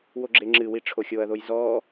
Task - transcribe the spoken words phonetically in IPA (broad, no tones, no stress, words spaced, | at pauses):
woɡ͡ǁeŋ͡ǁɨwi ʈ͡ʂʰoxʲoɐ̯ðoj zɔː